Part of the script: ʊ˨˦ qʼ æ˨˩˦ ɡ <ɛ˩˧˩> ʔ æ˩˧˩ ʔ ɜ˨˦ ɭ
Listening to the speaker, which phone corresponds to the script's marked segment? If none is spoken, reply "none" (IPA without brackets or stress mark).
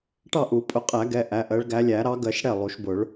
ɛ˩˧˩